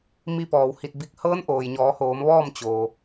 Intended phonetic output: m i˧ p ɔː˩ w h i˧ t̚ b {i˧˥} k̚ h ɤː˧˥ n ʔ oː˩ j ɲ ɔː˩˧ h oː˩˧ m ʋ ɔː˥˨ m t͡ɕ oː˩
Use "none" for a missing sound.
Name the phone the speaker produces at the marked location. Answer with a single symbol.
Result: i˧˥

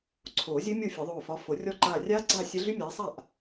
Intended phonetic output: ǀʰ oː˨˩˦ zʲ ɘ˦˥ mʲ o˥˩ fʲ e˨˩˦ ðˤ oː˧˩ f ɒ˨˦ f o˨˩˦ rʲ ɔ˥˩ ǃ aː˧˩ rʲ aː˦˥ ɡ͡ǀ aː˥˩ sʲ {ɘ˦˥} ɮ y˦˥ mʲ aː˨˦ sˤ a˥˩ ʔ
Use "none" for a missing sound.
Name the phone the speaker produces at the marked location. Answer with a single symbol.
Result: ɘ˦˥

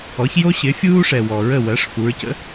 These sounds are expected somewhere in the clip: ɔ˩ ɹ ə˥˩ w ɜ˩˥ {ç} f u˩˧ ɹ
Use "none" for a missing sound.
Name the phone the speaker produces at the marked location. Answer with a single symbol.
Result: ʂ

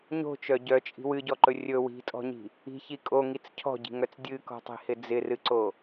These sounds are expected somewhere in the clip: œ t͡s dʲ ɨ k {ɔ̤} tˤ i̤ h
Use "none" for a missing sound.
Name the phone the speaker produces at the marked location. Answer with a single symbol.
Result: ɔ̤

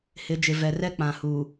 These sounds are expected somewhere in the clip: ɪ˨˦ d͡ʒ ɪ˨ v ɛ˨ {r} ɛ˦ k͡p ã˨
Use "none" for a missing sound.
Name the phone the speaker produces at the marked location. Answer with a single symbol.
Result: r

